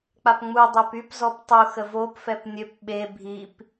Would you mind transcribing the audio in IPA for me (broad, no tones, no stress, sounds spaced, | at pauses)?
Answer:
k͡p a p ŋ͡m u dˤ ø p y p z ɔ p tˤ u x ə v o p f ɛ p nʲ ø p ɓ e bʱ i p